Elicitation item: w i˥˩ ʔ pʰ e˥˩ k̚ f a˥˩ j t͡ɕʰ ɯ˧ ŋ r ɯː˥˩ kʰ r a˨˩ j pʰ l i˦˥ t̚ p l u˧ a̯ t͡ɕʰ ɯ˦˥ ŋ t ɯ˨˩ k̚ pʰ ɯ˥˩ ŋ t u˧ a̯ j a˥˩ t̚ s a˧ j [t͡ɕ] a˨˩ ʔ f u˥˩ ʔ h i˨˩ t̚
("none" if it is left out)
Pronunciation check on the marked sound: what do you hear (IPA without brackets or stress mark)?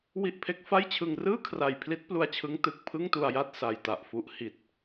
t